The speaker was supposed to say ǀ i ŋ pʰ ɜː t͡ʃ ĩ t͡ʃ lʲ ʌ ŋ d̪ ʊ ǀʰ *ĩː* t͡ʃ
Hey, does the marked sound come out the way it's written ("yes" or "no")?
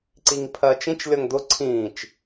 yes